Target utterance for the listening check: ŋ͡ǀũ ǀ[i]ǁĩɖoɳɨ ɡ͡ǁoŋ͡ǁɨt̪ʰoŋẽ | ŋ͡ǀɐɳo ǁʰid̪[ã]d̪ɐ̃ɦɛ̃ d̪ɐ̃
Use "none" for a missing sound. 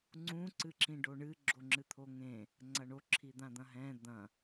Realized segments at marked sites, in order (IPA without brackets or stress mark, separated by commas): ɨ, ã